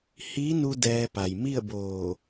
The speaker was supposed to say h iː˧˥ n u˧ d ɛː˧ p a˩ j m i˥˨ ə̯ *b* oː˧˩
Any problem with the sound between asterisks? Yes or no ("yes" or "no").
no